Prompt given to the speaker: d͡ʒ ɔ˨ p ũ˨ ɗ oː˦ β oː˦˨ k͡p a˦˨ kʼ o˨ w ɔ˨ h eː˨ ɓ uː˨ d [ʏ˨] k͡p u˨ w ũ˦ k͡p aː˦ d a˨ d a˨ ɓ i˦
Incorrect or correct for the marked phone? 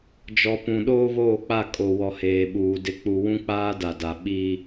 incorrect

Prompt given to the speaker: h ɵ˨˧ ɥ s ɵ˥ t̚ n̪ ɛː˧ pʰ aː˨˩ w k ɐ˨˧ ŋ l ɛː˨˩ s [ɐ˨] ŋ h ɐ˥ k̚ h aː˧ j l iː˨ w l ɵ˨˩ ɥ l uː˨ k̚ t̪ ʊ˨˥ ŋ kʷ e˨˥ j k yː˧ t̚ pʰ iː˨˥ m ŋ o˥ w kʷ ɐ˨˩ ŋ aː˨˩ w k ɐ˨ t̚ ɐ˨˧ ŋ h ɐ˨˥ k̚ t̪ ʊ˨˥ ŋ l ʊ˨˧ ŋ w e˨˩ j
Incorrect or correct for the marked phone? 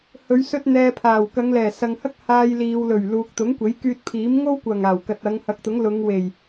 correct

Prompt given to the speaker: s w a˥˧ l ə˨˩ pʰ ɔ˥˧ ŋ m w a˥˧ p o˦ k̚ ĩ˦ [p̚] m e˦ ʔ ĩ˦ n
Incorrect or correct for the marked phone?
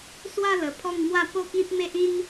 correct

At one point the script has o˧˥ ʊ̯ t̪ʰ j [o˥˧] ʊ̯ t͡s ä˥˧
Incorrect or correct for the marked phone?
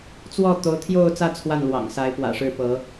correct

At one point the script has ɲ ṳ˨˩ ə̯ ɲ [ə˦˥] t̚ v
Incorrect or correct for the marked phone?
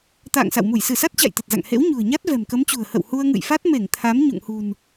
incorrect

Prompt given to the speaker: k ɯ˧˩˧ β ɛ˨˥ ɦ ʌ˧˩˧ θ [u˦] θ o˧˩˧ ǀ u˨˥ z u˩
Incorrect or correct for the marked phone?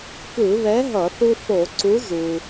correct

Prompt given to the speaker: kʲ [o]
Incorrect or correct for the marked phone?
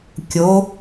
correct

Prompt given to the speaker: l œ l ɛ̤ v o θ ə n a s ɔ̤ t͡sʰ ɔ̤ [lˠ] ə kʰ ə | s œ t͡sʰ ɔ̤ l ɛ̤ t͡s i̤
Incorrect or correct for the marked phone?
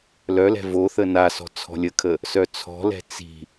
incorrect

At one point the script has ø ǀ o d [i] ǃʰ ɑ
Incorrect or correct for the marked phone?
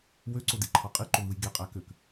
correct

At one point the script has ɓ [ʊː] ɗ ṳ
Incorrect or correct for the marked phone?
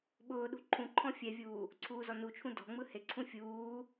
correct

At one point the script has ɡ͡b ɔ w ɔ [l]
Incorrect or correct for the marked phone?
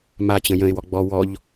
incorrect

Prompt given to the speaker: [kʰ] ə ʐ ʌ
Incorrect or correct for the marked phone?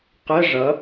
incorrect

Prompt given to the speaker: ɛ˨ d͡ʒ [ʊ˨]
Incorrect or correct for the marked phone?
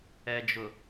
correct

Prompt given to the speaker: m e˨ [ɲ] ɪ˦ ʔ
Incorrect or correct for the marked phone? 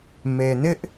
incorrect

